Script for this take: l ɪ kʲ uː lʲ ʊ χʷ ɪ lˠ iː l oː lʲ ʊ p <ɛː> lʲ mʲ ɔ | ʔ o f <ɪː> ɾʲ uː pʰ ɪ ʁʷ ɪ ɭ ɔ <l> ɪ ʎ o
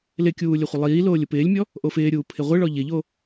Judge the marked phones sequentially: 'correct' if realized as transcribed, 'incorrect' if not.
incorrect: ɪː, correct, incorrect: ʎ

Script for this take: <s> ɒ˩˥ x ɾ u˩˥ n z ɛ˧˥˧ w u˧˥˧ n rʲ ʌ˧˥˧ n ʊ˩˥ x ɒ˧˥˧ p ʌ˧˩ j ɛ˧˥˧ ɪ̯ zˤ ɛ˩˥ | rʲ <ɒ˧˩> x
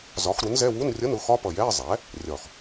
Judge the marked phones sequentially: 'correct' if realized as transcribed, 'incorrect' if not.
incorrect: z, correct

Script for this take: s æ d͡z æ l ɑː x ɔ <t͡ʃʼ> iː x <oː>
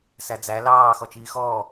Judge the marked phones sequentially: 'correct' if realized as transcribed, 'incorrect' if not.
incorrect: t͡ʃ, incorrect: ɔː

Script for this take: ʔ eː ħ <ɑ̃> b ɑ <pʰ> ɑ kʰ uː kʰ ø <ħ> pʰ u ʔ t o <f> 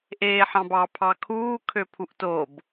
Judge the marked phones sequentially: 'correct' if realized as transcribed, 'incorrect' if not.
correct, correct, incorrect: none, incorrect: b

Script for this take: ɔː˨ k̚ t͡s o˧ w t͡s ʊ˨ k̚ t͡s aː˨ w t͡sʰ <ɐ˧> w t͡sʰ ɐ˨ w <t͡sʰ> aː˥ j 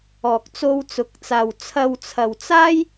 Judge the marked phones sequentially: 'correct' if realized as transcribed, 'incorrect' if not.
correct, incorrect: t͡s

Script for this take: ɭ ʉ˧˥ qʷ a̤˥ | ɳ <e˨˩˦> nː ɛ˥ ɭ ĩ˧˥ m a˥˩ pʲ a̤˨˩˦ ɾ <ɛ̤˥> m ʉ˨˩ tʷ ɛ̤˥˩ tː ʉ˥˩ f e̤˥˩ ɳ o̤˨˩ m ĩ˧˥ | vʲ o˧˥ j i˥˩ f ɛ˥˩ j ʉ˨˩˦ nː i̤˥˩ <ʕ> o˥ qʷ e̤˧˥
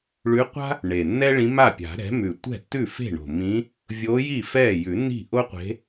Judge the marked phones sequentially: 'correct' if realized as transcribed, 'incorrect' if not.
incorrect: e˨˩, incorrect: ɛ̤˩˥, incorrect: ʔ

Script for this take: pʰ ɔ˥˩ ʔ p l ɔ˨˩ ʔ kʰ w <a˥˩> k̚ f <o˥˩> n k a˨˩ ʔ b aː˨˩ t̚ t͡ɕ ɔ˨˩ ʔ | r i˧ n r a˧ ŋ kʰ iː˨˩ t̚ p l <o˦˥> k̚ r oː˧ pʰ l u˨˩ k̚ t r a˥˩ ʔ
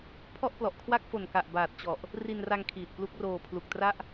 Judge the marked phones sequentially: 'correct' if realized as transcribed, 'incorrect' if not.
correct, incorrect: o˨˩, incorrect: u˦˥

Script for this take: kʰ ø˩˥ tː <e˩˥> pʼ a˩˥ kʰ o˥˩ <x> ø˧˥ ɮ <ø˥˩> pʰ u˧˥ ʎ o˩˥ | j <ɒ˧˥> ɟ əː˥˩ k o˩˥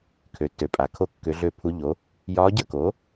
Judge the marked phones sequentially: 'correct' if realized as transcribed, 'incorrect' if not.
incorrect: ø˩˥, incorrect: kː, correct, incorrect: ɒː˧˥

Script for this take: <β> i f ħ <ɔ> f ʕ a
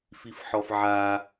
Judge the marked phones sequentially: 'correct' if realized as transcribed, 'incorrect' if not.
incorrect: f, correct

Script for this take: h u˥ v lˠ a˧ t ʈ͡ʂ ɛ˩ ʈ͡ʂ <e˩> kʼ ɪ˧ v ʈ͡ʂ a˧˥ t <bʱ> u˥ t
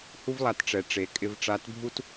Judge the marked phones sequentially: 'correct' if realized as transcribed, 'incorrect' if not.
correct, correct

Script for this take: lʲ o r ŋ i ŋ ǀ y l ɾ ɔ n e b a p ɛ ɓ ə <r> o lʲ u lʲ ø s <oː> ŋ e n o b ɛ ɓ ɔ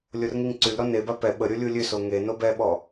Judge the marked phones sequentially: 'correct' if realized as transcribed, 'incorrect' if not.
incorrect: ɾʲ, incorrect: o

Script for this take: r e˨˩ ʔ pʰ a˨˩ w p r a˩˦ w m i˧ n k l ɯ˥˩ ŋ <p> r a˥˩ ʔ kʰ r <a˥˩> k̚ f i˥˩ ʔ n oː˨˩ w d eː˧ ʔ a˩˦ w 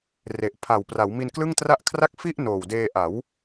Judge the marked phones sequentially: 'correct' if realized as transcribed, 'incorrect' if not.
incorrect: t, incorrect: a˦˥

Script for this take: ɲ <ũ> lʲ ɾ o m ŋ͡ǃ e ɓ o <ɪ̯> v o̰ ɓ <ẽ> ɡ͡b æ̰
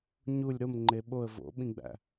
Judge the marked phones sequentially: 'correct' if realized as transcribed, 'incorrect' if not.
incorrect: u, incorrect: ə̯, incorrect: ĩ

